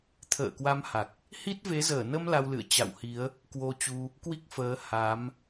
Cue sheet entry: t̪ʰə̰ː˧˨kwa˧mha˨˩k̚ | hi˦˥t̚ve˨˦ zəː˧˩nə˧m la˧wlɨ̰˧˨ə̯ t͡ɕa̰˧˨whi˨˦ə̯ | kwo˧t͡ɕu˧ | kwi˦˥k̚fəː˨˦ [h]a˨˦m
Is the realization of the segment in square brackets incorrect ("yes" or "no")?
no